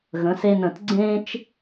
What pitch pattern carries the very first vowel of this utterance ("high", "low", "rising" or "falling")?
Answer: rising